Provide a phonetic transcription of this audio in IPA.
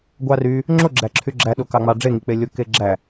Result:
ɡʷ ɑ r y | ŋ͡ǁ o ɡ͡ǁ æ ǁʰ y ɡ͡ǁ æ ɗ o k ɑ ŋ͡m ɑ ɖ͡ʐ e ŋ i k͡p e lʲ o k e ɡ͡ǁ æ

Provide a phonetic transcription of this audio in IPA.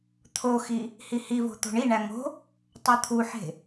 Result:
t̪ʰ o x i | h i h i v o̤ t̪ o̤ ɳ i ɳ æ ŋ o̤ | tˤ o t̪ʰ u ħ e̤

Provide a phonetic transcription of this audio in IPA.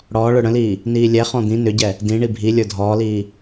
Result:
ɽ ɔː ɭ ə˞ ɽ ə̃ l iː | n iː lʲ ɛ χ ɔ̃ d̪ ĩ n ʏ ɟ ɛ | d ĩ ɳ i bʱ i lʲ ə˞ dʱ ɔː l iː

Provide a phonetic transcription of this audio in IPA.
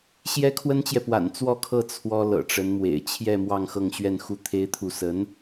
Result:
ɕ j ɛ˥ kʰ w ə˥ n t͡ɕ j ɛ˨ p w a̰˨˩ n t͡s w ɔ˥˧ kʰ ɤ˥˩ t͡sʰ w ɔ˥ l ɤ̰˨˩ ʈ͡ʂ ə˧˥ n m w ḛ˨˩ ɪ̯ t͡ɕʰ j ɛ˥˧ m w ɑ˥˧ ŋ x ɤ˥˧ ŋ ɕ ɥ ɛ˥˧ n x u˥˩ t̪ʰ e˥ ɪ̯ t̪ʰ u˥˩ s ə˧˥ n

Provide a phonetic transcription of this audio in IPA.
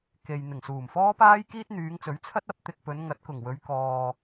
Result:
k e˨ j n̪ ɪ˨˩ ŋ s uː˨˩ m f ɔː˥ p aː˥ j k iː˥ t̚ n̪ yː˨˧ ŋ t͡s ɵ˨˥ ɥ t͡sʰ ɐ˥ t̚ ɐ˨˥ p̚ t̪ ɪ˧ k̚ p ɵ˨˧ n ŋ ɐ˨˥ t̚ k ʊ˨˩ ŋ w ɵ˨˧ ɥ k ɔː˧

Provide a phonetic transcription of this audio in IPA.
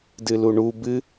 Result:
d ɨ l u ɳ u b ɨ

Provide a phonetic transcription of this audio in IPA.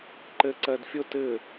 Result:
ǃ e ǀ ɛ d fʲ ʊ t ɪ

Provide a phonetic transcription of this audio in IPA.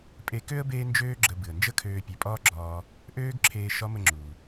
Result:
pʼ e˧ k ø˥ ə̯ b eː˥ n d͡ʒ øː˥ ɡ͡ǁ ə˧ b ɨ˩ ə̯ n d͡ʒ ə˥ kʰ øː˧ pʲ ø˩˧ pʼ ɒː˥ ɡ͡ǁ ɒː˧ | ʔ øː˥ ɡ ǁʰ eː˧ ʃ ɒ˧˥ m ə˧ ŋ͡ǁ u˩

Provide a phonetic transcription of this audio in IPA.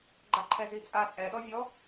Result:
ɡ͡ǃ a ǃʰ ɛ z i t͡sʼ a t͡sʼ ɛ ɗ ɔ vʲ ɔ

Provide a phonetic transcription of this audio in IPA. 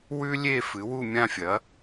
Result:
w ʉ˥ lʲ e˥˧ f ɨ˨˥ w u˥˧ mʲ ã˥˧ fʲ ɐ˨˥

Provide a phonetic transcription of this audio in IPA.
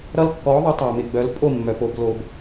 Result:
ɾ ʌ˦ l kː ɔ˨˥ ðˤ o˨˥ tˤ a˨ m ɪ˨ ɡ͡b œ˨˥ l pʼ o˥˩ mː œ˨ p o˨ b l o˨ b

